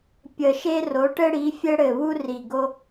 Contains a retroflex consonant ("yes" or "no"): yes